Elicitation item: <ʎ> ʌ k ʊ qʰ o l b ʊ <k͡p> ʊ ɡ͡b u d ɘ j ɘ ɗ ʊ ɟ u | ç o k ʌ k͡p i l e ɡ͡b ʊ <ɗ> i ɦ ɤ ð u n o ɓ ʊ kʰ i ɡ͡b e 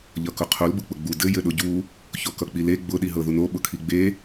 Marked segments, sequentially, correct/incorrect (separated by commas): correct, correct, correct